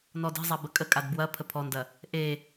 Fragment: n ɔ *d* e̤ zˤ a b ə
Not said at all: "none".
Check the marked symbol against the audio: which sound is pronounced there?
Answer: d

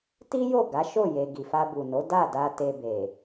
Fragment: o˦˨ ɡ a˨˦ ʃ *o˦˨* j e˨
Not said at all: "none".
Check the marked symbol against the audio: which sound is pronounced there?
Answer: o˦˨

